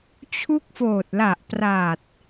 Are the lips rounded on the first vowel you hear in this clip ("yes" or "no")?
yes